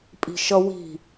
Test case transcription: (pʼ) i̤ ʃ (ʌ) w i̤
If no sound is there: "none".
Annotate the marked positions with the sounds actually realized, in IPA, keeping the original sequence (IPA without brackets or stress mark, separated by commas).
pʼ, ʌ